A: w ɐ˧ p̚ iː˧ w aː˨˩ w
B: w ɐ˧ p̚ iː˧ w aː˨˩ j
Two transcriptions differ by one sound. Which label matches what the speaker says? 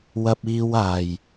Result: B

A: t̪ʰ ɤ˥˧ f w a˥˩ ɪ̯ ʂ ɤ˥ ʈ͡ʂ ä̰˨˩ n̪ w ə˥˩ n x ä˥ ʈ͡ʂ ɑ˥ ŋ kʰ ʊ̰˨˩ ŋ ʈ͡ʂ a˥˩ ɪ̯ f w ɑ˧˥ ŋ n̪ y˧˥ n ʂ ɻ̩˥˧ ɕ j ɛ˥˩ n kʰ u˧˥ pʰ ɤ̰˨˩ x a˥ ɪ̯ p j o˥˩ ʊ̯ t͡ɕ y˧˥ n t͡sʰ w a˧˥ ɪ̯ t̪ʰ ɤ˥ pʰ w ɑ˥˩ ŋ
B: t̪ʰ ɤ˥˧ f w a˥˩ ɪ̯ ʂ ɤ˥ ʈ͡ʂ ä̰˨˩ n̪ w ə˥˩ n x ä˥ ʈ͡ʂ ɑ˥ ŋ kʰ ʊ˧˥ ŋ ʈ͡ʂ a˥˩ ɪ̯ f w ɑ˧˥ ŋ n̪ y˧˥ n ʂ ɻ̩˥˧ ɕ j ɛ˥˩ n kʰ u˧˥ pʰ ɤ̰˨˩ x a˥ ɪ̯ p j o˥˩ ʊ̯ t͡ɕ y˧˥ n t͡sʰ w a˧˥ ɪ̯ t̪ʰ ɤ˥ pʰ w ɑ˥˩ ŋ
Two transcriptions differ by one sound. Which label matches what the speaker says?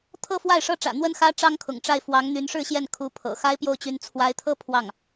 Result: A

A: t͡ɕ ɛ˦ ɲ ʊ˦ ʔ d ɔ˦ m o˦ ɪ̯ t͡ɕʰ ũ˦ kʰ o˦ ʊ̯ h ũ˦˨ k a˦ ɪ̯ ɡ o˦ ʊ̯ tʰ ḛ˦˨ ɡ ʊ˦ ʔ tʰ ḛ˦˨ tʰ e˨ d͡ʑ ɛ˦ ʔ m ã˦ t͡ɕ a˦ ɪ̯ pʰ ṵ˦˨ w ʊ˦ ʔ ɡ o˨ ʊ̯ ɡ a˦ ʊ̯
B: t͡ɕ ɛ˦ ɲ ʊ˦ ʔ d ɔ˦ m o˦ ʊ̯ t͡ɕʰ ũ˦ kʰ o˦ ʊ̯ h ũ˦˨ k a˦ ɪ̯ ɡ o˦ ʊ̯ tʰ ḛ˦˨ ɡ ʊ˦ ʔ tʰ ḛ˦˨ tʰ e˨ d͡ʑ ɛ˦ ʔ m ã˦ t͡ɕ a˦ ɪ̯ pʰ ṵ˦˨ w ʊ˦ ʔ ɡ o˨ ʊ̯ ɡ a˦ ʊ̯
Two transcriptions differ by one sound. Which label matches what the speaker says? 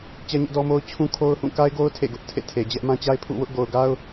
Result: B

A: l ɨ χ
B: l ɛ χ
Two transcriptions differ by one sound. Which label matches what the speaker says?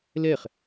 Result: B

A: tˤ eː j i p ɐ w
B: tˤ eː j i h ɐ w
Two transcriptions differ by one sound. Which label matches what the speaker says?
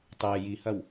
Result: B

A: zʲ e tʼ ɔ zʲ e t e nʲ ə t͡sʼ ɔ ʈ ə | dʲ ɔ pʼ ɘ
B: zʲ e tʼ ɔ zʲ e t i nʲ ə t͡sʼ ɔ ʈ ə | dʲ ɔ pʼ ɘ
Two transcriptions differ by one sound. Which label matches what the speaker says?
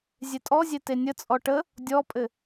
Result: A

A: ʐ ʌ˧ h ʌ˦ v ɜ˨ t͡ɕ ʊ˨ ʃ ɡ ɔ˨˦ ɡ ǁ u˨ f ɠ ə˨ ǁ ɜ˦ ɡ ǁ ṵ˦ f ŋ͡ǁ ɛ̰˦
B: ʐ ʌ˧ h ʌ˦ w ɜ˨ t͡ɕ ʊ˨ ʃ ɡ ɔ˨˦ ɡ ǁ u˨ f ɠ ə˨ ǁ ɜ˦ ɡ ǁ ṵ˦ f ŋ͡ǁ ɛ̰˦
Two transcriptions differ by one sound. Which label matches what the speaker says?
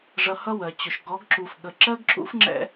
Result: B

